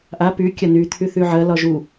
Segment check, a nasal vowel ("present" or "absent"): absent